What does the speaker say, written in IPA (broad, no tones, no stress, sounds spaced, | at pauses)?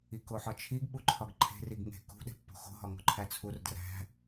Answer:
i k o ħ ɒ t͡ʃʰ i ɡ ɓ u ǃʰ ɒ ɡ ǃʰ e̤ r i ɡ ŋ e̤ k ṳ ɗ e̤ pː o̤ x o̤ ɦ ɒ ŋ o̤ ǃʰ æ t͡sʰ u r d r æ̤